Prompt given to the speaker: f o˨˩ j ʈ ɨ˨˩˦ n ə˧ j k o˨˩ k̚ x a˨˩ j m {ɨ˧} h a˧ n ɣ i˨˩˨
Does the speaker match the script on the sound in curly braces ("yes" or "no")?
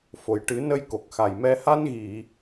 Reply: no